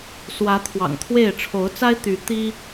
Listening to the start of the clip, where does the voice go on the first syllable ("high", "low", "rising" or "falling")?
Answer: rising